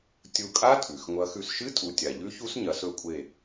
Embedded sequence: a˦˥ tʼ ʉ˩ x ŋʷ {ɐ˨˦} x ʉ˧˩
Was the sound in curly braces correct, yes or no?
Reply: yes